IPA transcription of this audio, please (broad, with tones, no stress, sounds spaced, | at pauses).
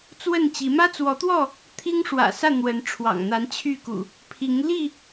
t͡s w ə˥˨ n t͡ɕ i˨˦ m ä˦ t͡s w ɔ˨˦ t̪ w ɔ˥˨ | t̪ʰ i˦ ŋ ʂ w ä̰˨˩ s ä˥˨ n̪ w ə˨˦ n ʈ͡ʂʰ w ɑ̰˨˩ ŋ n̪ a˨˦ n t͡ɕʰ y˥˨ k ṵ˨˩ | pʰ i˨˦ ŋ l i˥˨